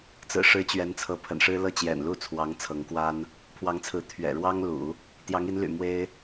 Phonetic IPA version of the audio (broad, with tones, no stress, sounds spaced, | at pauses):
t͡s ɹ̩˨˩ ʂ ɻ̩˧˥ t͡ɕ ɥ ɛ˧˥ n t͡sʰ ɤ˧˥ pʰ ə̰˨˩ n ʂ ɻ̩˥ l ɤ˥˩ t͡ɕ j ɛ̰˨˩ n l u˥˩ t͡sʰ w ɑ˧˥ ŋ t͡sʰ ɤ˧˥ ŋ k w a˥ n | pʰ w ɑ˧˥ ŋ t͡sʰ ɹ̩˧˥ t̪ʰ ɥ ɛ̰˨˩ ɻ w ɑ˥ ŋ l ṵ˨˩˦ | t̪ j ɑ˧˥ ŋ i˧˥ n l y̰˨˩ m w e˥ ɪ̯